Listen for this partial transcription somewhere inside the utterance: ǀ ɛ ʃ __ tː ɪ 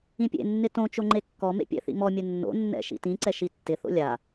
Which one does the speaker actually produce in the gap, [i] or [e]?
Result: i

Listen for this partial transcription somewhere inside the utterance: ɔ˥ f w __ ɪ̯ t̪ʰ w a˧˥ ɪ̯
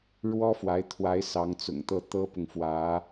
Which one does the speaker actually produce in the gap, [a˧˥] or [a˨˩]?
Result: a˧˥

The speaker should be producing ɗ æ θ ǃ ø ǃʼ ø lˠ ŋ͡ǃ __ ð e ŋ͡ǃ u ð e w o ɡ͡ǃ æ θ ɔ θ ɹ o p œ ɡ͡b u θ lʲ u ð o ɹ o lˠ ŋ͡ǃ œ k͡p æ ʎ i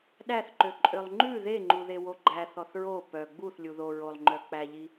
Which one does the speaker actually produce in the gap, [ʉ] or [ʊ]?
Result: ʉ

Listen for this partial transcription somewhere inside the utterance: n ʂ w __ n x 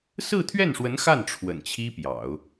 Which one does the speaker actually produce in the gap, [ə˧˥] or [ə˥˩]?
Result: ə˧˥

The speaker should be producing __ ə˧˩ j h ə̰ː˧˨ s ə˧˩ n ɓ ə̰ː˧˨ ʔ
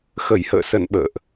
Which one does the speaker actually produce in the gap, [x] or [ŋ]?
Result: x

